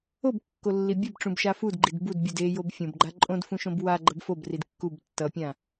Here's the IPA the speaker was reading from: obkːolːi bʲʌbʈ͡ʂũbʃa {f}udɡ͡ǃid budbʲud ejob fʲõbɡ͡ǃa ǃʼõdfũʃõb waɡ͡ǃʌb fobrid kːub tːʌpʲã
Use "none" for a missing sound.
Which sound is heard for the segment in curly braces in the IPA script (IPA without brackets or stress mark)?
f